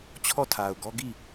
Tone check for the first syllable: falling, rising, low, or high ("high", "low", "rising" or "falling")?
falling